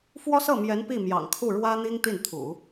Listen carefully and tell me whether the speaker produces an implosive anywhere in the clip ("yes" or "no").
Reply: no